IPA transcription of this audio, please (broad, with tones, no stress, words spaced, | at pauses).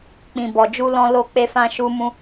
k͡pĩ˨ bɔ˨d͡ʒu˧lɔ̃˧ lo˧k͡pe˧fã˧ ʃu˦ mũ˧